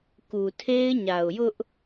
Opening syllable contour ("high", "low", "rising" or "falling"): low